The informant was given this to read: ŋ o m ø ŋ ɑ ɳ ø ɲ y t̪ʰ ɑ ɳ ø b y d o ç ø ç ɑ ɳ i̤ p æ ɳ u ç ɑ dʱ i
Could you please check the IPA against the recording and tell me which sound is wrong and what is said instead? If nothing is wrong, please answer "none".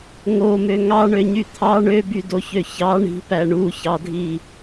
none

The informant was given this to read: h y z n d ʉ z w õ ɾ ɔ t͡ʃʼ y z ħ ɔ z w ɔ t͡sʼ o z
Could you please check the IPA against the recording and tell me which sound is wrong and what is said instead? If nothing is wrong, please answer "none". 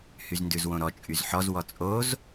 none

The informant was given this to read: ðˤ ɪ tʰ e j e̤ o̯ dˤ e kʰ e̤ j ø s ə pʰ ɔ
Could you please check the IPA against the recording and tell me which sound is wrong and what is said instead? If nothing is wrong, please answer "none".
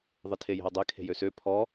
ə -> ø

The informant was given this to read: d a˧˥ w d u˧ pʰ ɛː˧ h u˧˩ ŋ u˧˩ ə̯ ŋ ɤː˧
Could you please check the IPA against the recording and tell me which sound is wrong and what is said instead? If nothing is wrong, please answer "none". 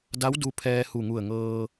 none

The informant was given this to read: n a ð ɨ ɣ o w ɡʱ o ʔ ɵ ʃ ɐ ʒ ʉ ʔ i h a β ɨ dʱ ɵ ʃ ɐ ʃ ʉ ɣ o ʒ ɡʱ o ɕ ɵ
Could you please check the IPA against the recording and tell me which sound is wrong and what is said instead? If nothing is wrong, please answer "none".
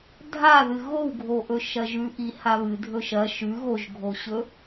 n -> dʱ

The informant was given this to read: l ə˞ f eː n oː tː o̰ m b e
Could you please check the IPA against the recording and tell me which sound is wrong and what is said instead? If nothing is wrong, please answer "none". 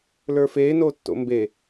none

